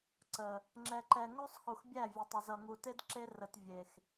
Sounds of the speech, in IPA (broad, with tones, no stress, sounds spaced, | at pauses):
ǀ ə˨ | ŋ͡ǁ ɛ˨ ǃ ɛ˨ ŋ o˦ sˤ x u˨ x bʲ æ˦˨ vʲ ə˨ tˤ ə˨ z ʌ˨ ŋ u˨ t e˦ d ǁ e˦ r ə˨ t vʲ e˨ x